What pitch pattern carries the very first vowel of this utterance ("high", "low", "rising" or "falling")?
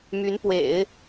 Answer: rising